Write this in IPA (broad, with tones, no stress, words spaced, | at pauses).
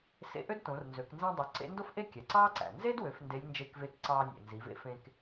sḛ˧ʔø˥dtõ˩˧rnzø˩˧k nzĩː˧dˤo˩˧ ǀḛ˧˥ndo˥f ʔe˥kʲæ˩ǀɑː˥ǀæ̰˩ nze˥dwø˩˧f nde˧˥lʲnd͡ʒe˧˥k veː˧kǀɑː˧nʲḛ˩ nzi˩˧vḛ˥fẽ˧k